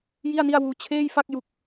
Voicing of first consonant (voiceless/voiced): voiced